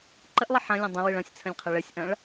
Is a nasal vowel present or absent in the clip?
present